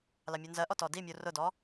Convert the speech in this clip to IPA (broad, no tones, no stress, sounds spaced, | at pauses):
l ɑ mʲ u n z ɜ ʔ ɔ t ɔ d i mʲ u r ʊ d ɔ